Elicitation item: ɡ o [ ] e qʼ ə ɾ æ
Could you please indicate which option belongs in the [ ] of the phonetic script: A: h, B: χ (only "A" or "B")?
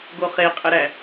B